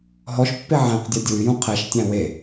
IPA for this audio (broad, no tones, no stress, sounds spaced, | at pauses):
ɦ ɔ ʃ pː e ʕ æ̃ q dʲ a dʲ u y̯ j ũ qʰ ɛ ʃ tʲ æ̃ w e